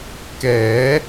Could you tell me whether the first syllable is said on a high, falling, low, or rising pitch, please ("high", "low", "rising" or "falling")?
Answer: rising